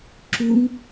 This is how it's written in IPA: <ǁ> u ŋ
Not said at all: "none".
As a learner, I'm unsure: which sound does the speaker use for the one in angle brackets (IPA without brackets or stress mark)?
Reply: ǁ